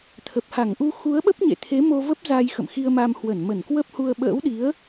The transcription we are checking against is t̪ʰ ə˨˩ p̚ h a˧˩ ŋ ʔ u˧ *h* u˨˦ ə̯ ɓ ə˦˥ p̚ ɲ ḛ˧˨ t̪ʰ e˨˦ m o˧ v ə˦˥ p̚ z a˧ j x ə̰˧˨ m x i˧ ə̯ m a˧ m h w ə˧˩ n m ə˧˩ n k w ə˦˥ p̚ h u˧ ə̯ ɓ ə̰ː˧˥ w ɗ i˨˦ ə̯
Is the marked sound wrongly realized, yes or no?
yes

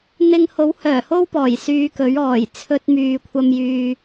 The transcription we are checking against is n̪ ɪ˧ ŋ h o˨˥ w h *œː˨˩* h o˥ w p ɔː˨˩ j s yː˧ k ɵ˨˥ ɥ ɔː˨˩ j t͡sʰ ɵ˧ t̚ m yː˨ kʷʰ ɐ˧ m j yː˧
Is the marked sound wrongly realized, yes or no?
no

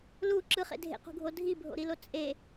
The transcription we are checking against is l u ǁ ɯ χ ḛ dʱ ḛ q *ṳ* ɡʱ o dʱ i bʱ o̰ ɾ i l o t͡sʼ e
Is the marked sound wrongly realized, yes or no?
no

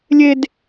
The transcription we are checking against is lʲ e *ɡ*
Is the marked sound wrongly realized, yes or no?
yes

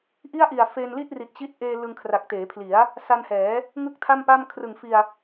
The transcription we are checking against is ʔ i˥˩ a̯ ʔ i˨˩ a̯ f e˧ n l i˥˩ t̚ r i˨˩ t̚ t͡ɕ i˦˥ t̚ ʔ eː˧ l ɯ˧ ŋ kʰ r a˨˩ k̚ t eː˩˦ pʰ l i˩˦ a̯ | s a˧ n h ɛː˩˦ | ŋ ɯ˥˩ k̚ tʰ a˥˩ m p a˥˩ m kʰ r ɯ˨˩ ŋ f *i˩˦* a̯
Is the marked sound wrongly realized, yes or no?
yes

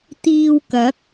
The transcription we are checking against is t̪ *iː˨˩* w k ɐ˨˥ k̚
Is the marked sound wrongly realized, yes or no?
yes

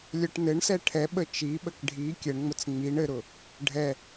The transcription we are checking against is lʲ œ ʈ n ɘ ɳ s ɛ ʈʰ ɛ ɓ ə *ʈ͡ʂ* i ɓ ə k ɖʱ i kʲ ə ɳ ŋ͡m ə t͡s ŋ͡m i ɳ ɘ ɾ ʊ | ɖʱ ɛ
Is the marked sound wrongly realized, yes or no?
yes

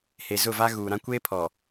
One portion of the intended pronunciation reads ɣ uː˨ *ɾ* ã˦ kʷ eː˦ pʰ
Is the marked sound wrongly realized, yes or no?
no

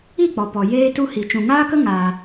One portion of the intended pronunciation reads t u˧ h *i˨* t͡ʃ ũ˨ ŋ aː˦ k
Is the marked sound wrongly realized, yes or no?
no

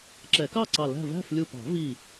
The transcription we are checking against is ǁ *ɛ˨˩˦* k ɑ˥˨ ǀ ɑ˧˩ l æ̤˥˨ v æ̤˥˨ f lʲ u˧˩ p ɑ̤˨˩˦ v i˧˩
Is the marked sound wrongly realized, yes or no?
no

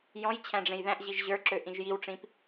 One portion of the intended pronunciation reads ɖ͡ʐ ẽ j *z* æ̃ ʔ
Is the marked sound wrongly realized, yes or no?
yes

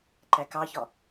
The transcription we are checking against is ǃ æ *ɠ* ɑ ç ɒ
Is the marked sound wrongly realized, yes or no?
yes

